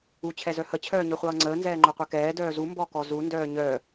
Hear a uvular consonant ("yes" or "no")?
yes